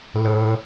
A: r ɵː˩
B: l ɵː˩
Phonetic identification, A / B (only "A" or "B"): B